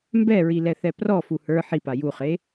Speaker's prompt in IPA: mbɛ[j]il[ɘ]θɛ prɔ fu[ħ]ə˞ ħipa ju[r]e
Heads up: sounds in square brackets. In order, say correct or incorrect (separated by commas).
incorrect, incorrect, incorrect, incorrect